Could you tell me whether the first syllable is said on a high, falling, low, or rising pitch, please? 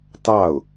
falling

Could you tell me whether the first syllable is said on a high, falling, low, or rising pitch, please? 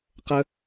high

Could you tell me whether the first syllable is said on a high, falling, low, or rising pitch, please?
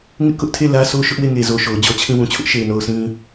high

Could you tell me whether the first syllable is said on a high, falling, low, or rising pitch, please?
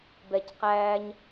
low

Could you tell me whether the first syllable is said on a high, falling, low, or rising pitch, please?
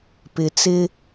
low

